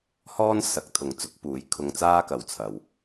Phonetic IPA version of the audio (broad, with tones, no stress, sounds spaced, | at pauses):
h ɔː˥ n s ɐ˨˥ k̚ t̪ʰ ʊ˨˥ ŋ t͡s ʊ˨˥ k̚ p uː˨˥ j kʰ ʊ˧ ŋ t͡s aː˥ k ɐ˨ w t͡sʰ ɐ˨ w